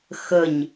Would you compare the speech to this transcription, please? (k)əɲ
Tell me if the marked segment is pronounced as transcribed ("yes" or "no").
no